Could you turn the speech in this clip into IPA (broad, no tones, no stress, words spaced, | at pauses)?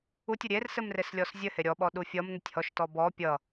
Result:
utʲʌ ɾʲersɘmreslʲɔs zʲɘhe ɾʲɔɓɔɗu fʲʌmn̪ɘtʲ hɔʃtɔ bɔ pʲʌ